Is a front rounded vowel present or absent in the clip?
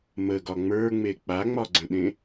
absent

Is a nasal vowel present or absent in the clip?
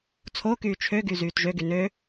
absent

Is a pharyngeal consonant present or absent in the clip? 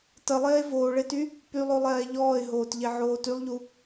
present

